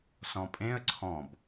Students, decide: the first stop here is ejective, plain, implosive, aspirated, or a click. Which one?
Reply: ejective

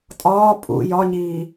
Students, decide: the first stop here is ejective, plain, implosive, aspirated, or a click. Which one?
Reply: ejective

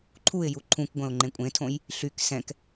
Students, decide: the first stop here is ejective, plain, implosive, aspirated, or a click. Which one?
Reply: click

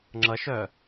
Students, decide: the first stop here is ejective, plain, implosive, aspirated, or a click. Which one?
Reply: click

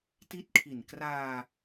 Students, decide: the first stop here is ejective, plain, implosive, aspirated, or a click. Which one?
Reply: plain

